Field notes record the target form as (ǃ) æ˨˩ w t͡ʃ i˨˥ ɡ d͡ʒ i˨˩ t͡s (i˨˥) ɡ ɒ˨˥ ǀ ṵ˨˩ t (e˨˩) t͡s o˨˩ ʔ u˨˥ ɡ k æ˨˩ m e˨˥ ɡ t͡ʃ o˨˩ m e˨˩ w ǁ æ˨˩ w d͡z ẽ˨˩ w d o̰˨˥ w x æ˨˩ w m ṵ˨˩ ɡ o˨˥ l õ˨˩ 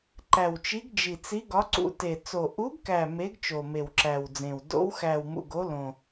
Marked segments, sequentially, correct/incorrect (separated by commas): correct, correct, correct